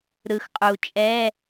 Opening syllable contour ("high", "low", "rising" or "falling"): low